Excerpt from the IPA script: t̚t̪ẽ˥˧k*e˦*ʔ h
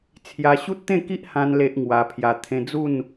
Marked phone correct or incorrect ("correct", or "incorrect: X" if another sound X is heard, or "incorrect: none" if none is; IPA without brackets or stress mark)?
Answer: incorrect: i˦